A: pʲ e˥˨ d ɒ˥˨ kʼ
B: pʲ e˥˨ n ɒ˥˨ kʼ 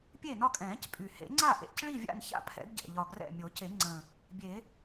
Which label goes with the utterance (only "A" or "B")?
B